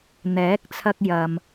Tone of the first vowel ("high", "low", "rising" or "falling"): rising